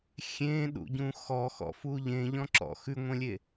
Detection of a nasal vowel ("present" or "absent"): present